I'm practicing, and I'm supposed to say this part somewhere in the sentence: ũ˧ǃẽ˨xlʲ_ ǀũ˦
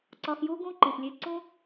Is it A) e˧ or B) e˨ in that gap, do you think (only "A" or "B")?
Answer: A